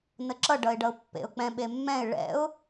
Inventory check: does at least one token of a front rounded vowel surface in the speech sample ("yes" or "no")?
no